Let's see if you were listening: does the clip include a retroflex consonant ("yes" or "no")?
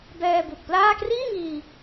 no